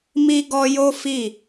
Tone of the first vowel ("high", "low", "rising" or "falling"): high